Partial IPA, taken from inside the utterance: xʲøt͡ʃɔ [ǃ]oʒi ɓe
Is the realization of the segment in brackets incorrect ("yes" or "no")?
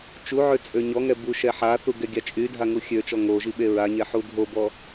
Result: yes